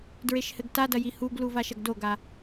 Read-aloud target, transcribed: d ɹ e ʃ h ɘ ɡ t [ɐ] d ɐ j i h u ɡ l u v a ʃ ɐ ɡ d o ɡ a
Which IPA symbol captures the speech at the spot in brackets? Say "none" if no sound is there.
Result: a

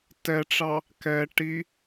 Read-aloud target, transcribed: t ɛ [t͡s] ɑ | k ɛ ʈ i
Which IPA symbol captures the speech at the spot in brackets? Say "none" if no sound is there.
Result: ʈ͡ʂ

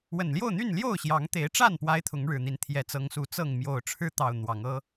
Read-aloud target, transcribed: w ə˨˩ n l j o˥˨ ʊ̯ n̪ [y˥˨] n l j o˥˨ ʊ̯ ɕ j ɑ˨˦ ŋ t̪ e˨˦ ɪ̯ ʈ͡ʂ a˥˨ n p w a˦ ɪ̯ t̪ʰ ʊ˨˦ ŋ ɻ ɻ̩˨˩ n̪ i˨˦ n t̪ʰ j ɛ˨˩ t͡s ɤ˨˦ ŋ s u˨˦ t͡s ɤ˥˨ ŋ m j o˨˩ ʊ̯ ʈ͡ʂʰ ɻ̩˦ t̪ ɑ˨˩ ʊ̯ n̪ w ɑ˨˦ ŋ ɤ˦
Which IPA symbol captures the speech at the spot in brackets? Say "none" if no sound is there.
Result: y˥˨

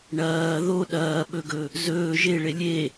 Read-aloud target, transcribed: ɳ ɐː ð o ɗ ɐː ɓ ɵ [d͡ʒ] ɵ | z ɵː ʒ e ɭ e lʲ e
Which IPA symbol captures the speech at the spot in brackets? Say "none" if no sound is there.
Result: ɡ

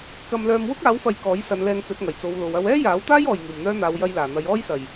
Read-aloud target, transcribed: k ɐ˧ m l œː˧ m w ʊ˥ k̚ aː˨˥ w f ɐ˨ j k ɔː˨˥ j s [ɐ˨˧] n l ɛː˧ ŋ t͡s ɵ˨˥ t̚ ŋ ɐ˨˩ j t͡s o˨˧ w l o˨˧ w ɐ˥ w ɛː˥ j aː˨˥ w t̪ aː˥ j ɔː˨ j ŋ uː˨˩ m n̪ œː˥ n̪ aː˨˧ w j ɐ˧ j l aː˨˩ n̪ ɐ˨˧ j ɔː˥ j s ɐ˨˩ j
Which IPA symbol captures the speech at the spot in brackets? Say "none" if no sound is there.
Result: ɐ˨˧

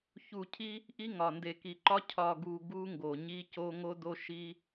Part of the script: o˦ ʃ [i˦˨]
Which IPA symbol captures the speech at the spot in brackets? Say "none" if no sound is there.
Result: i˦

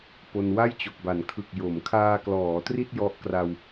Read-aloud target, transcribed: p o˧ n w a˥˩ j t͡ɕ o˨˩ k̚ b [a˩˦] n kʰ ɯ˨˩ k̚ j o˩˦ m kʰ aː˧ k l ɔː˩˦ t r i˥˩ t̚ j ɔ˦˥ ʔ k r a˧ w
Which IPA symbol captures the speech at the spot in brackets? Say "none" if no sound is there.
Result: a˩˦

